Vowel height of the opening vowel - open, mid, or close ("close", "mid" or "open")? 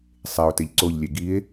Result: mid